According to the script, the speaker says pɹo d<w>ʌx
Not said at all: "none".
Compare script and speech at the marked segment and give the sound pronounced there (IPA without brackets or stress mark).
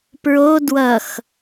w